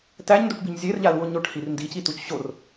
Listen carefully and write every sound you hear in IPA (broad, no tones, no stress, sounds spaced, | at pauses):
t æ ɲ n d u ʈ b i ɲ zʲ e r ʎ a l u o̯ ɲ o ʈ h i r n d i c i t u c ɕ o r